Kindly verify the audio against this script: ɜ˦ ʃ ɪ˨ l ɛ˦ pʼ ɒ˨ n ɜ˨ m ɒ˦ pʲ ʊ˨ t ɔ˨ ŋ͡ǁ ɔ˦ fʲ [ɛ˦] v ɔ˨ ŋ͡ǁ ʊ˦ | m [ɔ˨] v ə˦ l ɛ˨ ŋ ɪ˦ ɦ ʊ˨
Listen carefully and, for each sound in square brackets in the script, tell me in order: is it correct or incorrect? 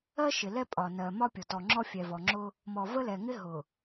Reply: incorrect: ɛ˨, correct

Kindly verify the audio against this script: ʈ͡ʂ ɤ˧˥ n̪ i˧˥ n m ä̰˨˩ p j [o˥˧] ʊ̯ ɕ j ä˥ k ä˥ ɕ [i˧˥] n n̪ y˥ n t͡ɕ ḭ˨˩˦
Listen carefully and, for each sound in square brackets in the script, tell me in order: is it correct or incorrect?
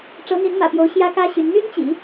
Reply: incorrect: o˧˥, incorrect: y˧˥

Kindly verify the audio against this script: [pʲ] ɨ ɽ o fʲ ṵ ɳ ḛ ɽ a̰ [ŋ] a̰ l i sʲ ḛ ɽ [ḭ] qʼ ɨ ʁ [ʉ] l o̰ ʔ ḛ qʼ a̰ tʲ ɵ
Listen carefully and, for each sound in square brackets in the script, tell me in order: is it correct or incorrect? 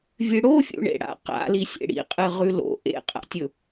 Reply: incorrect: vʲ, incorrect: q, correct, correct

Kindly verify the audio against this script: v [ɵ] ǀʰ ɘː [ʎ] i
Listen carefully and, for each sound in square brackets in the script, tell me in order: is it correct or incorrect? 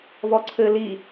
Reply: incorrect: ɔ, incorrect: l

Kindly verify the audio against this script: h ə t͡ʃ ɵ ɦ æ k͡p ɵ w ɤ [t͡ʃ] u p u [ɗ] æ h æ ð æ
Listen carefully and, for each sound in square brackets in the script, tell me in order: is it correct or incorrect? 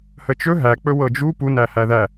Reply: incorrect: d͡ʒ, incorrect: n

